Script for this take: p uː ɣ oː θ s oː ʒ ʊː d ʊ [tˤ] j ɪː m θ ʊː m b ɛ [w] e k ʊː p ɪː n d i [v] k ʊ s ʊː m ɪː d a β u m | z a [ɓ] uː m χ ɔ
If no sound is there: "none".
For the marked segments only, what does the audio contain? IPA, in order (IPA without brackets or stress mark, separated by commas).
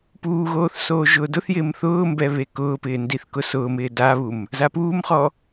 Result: θ, β, θ, p